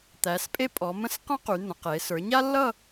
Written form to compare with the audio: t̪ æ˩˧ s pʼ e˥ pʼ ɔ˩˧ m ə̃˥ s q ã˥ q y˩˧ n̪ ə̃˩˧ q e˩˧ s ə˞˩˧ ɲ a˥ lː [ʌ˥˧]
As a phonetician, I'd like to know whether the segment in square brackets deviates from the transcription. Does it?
no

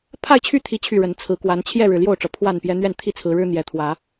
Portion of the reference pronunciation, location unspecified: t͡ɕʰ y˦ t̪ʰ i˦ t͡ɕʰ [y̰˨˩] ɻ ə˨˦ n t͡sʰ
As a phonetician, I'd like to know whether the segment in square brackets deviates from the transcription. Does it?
yes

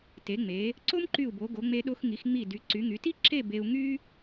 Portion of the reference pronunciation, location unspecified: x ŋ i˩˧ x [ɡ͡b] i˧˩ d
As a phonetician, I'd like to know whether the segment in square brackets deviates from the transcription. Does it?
yes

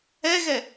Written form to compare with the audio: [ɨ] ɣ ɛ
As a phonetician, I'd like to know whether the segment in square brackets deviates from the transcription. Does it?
yes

